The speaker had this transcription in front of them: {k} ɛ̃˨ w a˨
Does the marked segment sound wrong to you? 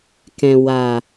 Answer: no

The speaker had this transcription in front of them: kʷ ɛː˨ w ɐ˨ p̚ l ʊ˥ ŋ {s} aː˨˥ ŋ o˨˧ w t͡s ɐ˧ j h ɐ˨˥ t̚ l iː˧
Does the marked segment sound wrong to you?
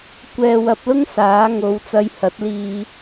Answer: no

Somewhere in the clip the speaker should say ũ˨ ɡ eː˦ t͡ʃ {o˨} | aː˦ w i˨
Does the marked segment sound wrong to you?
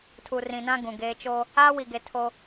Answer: yes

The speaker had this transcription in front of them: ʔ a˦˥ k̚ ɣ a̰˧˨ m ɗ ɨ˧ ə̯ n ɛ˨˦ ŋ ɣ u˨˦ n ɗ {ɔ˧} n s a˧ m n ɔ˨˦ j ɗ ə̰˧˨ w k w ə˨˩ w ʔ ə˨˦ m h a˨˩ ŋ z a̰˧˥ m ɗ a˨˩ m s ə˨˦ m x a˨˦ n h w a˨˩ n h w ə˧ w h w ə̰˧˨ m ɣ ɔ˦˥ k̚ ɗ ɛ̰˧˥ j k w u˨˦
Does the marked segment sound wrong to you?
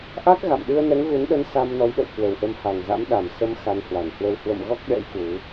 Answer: yes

